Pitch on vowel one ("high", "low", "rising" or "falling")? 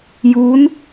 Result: rising